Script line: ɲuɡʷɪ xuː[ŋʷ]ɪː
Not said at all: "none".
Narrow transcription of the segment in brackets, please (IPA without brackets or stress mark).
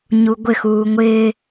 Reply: ŋʷ